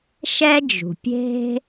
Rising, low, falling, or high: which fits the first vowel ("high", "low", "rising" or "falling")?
high